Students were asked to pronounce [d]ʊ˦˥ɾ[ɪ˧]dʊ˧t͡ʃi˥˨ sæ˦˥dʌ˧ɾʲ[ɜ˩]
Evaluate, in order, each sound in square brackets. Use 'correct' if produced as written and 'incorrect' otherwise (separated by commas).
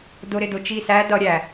correct, correct, incorrect